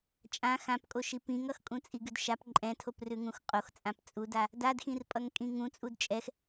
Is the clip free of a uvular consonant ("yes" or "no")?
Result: no